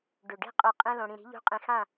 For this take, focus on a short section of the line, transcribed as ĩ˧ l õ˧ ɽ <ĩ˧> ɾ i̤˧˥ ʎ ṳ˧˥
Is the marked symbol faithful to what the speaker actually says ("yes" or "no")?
yes